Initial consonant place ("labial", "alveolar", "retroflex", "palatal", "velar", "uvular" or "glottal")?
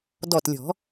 alveolar